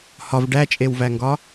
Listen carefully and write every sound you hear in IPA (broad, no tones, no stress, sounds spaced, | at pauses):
h ɒ v ɖ æ t͡ʃʼ e w v æ ŋ ɡ ɒ